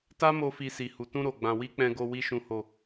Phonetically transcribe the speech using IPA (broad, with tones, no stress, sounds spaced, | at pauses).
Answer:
t a˦ m o˦ f i˧ s i˨ h u˨ t ũ˧ ɾ o˨ ɡ͡b ã˨ w i˧ k͡p ɛ̃˧ ɡ o˧ w i˧ ʃ ũ˨ h o˨